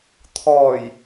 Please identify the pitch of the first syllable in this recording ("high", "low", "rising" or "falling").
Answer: low